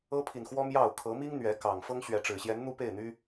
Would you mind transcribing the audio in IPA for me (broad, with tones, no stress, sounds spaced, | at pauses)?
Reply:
ɤ˦ pʰ i˨ n x w ɔ˦ m j ɑ˥˨ ʊ̯ kʰ ɤ˨˦ m i˦ ŋ n̪ ɥ ɛ˨˦ k ɑ˨˩ ŋ f ɤ˦ ŋ ɕ ɥ ɛ˨˦ ʈ͡ʂ ɻ̩˨˩ ɕ j ɛ˨˦ n n̪ u˦ p e˥˨ ɪ̯ n̪ y˦